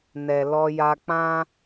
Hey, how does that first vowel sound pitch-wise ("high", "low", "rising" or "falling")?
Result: low